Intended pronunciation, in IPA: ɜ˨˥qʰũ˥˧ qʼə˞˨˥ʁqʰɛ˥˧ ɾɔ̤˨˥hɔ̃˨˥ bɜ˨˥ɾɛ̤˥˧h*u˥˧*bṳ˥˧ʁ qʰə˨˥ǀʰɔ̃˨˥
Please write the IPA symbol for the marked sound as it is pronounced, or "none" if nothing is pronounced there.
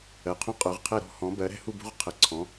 u˥˧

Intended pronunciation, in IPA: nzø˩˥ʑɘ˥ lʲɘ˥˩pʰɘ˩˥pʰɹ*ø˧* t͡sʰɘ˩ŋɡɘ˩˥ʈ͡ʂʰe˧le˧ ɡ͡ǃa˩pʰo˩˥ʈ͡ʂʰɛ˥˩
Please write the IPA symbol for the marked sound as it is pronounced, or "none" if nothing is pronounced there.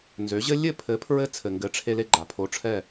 ɘ˧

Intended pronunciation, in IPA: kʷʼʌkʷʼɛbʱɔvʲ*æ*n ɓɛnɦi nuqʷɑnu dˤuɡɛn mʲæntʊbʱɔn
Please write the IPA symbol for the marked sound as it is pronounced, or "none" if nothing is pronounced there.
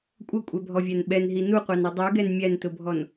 æ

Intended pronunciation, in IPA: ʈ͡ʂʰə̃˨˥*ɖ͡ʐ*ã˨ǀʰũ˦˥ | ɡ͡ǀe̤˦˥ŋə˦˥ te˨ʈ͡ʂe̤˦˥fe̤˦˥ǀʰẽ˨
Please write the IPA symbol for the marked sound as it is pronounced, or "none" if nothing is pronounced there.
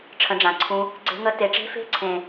ɖ͡ʐ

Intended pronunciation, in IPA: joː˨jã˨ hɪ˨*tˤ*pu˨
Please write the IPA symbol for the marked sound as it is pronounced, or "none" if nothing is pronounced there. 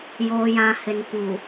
n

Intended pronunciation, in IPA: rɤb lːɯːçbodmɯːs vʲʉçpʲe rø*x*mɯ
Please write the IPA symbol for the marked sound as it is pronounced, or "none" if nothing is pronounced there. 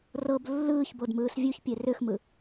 x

